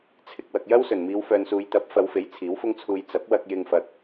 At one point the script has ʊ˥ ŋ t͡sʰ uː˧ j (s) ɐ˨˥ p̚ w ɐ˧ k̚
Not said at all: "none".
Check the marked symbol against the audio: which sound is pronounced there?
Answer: t͡s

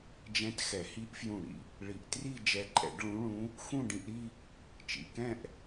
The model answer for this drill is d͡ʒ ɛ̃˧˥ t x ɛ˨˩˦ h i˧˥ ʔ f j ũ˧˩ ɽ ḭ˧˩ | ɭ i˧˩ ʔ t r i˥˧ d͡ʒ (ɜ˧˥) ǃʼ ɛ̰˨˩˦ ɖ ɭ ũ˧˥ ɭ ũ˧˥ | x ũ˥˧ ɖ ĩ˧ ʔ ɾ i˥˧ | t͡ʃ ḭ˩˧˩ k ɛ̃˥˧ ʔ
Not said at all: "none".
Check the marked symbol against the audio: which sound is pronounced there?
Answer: ɛ˧˥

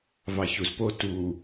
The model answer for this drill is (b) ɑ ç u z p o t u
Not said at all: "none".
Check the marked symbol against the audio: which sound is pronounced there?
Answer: v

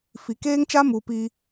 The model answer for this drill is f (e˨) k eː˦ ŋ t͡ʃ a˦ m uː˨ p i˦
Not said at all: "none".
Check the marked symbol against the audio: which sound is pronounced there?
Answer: i˨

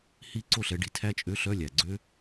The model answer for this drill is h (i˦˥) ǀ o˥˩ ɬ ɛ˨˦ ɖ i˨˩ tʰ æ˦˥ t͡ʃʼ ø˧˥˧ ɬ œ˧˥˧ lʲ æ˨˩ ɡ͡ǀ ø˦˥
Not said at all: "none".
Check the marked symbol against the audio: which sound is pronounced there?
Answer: i˦˥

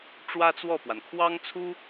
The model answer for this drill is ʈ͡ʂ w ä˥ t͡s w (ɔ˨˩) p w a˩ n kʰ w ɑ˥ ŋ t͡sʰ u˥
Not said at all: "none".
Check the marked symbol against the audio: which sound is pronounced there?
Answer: ɔ˥˩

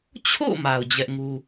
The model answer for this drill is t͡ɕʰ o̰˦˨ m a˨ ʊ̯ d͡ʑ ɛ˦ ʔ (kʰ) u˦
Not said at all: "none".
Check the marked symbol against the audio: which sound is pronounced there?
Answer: ŋ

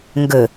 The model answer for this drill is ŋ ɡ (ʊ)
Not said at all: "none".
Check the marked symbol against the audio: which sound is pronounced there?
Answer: ɵ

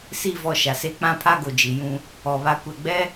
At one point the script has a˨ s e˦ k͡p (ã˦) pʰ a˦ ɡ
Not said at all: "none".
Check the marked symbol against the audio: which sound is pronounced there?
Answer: ã˦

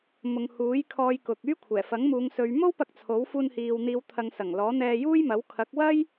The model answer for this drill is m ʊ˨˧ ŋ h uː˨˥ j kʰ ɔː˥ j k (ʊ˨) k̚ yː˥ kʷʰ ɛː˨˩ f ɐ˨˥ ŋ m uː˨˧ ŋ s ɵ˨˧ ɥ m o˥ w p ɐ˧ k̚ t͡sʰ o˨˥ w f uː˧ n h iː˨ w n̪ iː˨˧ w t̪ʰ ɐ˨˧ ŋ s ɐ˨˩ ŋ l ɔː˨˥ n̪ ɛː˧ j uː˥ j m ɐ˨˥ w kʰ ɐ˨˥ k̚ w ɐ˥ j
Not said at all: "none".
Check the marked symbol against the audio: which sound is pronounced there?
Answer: ʊ˧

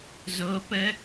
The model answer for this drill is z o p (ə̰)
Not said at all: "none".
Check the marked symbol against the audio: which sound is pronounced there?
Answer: ə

